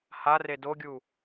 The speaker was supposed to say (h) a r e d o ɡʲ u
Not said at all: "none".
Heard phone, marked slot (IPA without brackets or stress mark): h